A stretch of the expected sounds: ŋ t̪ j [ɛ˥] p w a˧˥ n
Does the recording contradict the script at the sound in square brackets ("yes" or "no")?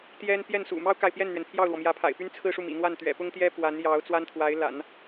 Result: no